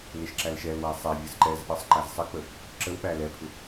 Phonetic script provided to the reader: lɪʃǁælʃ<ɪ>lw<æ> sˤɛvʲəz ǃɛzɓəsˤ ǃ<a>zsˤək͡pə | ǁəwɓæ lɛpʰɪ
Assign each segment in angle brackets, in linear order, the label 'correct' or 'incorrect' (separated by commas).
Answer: incorrect, correct, incorrect